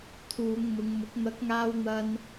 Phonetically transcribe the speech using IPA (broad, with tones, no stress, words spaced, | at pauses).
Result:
t̪ʰuː˨˧ŋmʊ˨˧ŋmʊ˨˥k̚ n̪ɐ˨˥k̚ŋaː˧wn̪ɐ˧n